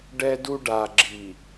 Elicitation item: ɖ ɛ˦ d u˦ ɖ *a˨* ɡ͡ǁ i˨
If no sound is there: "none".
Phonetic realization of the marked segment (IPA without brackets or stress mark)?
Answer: a˨